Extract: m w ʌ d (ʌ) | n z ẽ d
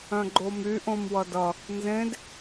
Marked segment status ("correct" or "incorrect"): correct